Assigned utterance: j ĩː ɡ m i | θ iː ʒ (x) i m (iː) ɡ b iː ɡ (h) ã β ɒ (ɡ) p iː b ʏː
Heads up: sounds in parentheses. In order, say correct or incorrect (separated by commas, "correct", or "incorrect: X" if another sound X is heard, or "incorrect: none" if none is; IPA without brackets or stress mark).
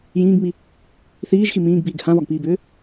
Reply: correct, incorrect: ĩː, correct, correct